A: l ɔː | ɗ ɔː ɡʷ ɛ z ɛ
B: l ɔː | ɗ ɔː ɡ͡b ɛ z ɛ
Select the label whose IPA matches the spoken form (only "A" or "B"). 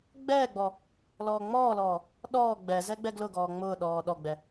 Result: B